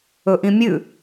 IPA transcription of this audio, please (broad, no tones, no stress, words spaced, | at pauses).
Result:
ɵʔĩmʲʉ